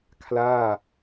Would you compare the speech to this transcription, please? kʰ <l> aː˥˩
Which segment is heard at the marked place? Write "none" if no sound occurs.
l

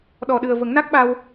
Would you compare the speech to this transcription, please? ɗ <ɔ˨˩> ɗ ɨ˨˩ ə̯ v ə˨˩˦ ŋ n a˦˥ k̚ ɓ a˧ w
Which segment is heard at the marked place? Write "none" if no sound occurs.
ɔ˨˩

